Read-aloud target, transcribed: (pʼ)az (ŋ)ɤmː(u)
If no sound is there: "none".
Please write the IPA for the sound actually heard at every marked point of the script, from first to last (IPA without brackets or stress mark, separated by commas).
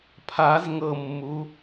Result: pʰ, ŋ, u